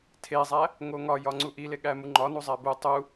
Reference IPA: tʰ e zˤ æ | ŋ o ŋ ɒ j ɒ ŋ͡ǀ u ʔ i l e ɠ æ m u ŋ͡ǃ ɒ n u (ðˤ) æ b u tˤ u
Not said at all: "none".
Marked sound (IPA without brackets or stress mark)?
zˤ